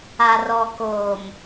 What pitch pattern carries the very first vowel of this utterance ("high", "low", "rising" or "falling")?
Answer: low